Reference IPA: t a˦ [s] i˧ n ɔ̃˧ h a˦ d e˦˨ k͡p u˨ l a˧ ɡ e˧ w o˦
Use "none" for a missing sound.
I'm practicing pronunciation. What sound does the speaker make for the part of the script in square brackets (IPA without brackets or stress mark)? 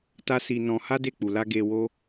s